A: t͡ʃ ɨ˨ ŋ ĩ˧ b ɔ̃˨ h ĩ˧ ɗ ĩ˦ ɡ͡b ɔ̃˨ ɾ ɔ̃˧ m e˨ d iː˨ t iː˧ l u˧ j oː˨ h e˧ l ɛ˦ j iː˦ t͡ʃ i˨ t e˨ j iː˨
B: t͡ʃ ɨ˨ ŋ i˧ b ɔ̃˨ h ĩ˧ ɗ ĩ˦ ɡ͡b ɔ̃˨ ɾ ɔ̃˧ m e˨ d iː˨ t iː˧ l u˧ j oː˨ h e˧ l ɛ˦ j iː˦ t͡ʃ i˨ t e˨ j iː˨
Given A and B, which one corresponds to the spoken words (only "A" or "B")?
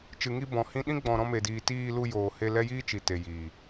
B